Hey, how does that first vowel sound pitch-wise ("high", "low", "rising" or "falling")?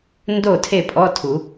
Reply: falling